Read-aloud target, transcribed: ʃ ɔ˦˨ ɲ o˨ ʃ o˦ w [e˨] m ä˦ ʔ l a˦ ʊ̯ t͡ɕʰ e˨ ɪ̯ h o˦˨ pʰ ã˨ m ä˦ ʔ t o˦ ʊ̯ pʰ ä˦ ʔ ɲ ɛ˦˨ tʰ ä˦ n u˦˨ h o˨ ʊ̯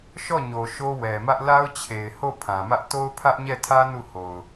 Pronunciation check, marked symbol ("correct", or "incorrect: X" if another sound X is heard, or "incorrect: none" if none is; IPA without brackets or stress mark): incorrect: ɛ˨